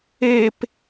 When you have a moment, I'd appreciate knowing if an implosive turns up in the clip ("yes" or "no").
no